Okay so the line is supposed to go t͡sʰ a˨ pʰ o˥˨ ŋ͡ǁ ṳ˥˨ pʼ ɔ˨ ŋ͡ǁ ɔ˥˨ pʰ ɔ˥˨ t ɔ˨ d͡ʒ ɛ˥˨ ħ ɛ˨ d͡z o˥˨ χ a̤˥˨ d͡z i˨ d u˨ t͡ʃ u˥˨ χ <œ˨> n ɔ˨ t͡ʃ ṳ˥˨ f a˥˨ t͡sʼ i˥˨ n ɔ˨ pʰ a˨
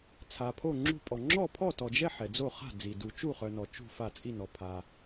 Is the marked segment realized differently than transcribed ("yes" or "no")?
no